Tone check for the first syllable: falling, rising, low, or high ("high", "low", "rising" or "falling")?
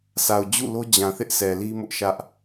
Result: low